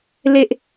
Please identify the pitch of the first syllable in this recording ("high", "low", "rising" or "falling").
low